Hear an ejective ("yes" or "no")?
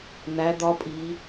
yes